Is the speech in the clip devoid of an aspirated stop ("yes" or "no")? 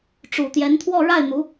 no